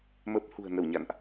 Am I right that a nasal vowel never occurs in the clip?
yes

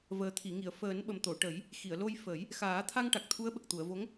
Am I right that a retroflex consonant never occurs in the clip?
no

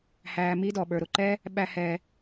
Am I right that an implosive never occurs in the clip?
no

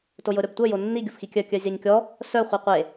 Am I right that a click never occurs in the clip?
yes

